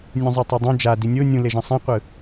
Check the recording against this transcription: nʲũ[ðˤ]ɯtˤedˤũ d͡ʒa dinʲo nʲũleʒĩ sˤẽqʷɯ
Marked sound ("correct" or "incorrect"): incorrect